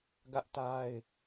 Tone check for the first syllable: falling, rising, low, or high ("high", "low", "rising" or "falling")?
high